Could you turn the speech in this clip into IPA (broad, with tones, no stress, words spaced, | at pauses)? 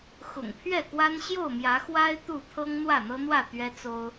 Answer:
xʊ̰˨˩ŋpʰɥɛ˥˨kwa˦n ɕjo˥˨ʊ̯mjä˨˦ xwa˦ɪ̯ t̪u˥˨ t̪ʰɤ˦ŋn̪wä˥˨n̪ɤ˦n̪wä˥˨ t̪ɥɛ˦t͡so˦ʊ̯